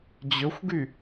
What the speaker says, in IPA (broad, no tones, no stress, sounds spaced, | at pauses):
d͡ʑ ɵ xʷ ɡ y